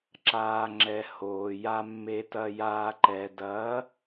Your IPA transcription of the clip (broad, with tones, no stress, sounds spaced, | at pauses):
ǁ aː˨ ŋ͡ǁ ɛ˨ h oː˨ j a˨ mː e˨ t ɐ˨ j aː˨ ǃ ɛ˨ d ɐː˨˦